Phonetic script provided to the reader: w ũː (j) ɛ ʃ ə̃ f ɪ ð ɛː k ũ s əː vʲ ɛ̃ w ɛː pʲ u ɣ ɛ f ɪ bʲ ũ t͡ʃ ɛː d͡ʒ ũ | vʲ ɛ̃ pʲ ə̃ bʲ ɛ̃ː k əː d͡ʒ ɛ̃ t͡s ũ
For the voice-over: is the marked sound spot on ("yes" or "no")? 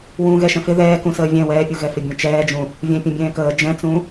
no